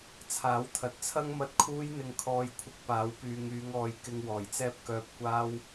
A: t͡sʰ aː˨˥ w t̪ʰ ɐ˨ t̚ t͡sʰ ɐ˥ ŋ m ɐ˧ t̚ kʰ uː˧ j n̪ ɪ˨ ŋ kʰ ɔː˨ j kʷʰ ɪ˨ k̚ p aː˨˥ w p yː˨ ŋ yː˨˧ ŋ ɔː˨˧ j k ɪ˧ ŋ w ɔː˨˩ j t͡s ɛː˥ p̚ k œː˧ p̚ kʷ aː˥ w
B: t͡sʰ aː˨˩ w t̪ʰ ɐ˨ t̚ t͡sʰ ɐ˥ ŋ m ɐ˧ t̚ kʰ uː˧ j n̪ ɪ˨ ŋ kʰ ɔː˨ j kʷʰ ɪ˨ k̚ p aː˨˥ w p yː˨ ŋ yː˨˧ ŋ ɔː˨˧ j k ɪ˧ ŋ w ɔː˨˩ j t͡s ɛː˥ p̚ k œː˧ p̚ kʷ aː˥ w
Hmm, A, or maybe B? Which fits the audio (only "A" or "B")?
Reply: A